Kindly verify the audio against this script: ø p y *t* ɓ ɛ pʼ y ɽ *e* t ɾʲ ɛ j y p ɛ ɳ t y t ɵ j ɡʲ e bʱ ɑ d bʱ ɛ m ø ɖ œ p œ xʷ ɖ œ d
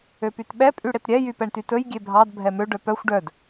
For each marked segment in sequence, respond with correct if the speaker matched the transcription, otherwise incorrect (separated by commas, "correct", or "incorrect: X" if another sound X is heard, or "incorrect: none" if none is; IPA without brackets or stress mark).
correct, correct